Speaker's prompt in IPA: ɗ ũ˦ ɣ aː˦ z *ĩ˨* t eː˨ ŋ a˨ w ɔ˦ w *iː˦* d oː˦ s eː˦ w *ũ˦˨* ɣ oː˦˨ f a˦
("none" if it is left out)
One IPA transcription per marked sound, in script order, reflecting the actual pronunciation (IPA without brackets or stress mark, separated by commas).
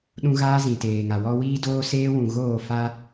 ĩ˨, iː˦, ũ˨